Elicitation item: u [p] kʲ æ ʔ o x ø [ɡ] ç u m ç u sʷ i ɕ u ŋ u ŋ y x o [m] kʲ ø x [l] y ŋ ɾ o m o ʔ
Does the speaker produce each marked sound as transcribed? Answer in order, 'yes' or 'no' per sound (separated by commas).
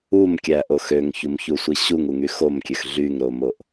no, no, yes, no